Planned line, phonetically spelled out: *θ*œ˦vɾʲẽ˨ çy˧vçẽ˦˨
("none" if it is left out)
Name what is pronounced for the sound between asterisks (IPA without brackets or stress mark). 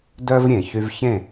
d